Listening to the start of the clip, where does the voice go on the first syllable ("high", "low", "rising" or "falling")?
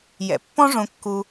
low